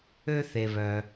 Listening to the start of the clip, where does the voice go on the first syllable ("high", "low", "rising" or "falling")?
high